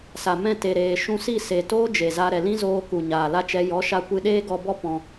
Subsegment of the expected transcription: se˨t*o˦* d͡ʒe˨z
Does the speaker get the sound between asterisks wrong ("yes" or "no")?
yes